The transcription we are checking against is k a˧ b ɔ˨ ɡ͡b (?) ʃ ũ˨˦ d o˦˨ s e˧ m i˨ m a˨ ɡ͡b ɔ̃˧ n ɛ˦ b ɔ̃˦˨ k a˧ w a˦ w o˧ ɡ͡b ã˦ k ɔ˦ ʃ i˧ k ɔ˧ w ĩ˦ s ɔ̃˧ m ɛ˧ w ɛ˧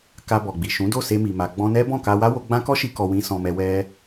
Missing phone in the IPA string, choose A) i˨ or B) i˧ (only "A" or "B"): A